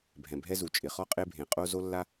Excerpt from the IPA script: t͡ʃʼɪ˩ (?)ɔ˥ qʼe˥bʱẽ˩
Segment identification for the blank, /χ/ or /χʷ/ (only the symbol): χ